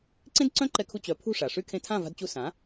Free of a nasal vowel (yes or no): no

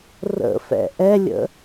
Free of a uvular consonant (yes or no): yes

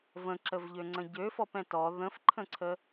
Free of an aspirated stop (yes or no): no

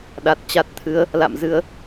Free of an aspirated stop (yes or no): no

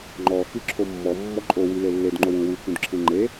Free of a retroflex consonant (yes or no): yes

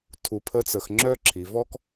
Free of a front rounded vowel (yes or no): no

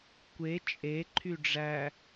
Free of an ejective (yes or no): no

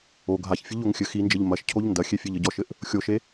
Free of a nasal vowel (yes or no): yes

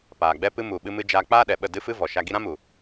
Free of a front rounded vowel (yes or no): yes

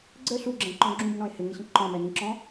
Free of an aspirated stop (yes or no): yes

